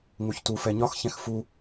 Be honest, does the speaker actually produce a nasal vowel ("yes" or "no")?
yes